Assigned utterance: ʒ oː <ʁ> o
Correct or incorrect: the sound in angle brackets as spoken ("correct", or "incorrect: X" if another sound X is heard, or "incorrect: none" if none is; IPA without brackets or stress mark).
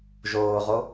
correct